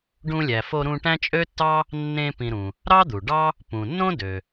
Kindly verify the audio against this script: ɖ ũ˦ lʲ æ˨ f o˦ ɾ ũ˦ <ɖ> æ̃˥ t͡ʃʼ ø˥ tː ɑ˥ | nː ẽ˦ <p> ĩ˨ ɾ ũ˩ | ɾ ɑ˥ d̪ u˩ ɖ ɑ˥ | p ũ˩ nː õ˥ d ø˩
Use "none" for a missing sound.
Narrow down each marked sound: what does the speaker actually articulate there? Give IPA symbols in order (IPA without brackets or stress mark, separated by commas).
ʈ, p